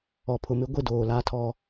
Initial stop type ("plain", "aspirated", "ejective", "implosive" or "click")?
aspirated